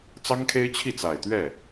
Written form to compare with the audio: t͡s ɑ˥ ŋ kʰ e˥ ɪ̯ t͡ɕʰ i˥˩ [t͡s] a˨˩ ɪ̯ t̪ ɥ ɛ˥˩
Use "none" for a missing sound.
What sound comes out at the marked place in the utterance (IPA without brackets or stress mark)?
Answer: t͡s